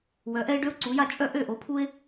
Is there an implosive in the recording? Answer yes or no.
no